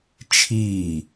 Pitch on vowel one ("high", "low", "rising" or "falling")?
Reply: falling